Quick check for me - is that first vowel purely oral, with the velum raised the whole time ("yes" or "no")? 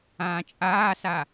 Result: no